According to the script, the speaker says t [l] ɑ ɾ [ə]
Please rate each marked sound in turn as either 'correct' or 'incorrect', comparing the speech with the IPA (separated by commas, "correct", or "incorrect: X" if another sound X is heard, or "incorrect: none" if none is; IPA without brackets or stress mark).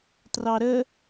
incorrect: r, correct